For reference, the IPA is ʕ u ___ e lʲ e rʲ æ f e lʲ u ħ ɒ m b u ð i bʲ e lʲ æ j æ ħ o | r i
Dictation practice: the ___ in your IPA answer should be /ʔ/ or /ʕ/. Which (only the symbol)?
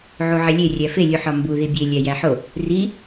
ʕ